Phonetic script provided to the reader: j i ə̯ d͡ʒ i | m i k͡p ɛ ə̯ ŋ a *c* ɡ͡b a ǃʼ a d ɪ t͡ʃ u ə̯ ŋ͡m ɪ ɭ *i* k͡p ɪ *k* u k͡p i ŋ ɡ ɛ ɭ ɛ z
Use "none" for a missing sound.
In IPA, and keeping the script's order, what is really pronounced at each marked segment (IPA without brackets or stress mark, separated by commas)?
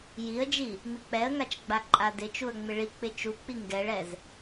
t͡ʃ, i, t͡ʃ